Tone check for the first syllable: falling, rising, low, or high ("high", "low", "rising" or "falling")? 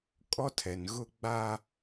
high